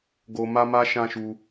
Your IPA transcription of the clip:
ɡ o˦ m a˦ m a˦ ʃ ã˦ ʃ u˧

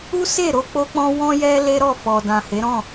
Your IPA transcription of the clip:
u˦ s e˦˨ ɾ o˧ k͡p o˦ k͡p ɔ̃˦ w ɔ̃˦ j ɛ˦ l e˦ ɾ ɔ˦˨ f ɔ˨ d ã˨ h e˨˦ ɾ ɔ̃˦˨

